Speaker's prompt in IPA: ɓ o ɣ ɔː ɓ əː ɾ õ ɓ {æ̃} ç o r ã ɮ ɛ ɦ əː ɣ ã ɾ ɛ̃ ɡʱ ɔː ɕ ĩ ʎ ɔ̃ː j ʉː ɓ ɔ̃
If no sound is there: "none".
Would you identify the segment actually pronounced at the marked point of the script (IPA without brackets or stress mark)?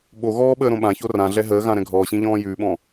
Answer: ã